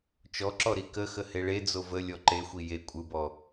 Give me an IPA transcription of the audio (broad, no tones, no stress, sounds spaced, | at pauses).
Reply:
t͡ʃ ɔ ǁ ɔ ɾ i k ə x ə h e ɭ e d͡z o v ə lʲ ɔ ǃ e xʷ i j e kʷʼ ɯ b ɔ